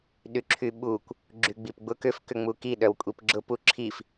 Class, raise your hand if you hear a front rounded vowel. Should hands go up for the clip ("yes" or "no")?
yes